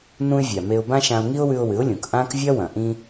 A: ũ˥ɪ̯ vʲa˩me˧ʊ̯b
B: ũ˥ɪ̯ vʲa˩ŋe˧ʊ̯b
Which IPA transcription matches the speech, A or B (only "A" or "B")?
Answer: A